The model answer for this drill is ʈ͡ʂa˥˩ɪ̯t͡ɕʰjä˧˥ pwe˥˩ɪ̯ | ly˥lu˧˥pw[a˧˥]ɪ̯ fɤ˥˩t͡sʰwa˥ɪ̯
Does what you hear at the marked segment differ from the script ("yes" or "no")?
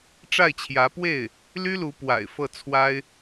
yes